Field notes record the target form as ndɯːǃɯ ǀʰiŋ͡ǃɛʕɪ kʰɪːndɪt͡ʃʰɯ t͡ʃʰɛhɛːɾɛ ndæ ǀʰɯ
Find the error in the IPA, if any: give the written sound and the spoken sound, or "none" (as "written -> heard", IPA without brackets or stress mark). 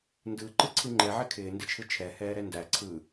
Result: none